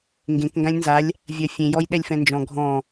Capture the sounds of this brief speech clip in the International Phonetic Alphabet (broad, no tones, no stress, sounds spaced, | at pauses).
ŋ ɡ ẽ k ŋ ɡ ã lʲ n z a lʲ | vʲ ɜ fʲ ẽ j ɔ j ɗ ɛ lʲ f ɛ̃ n d͡ʒ ɔ̃ ɡʱ ɔ̃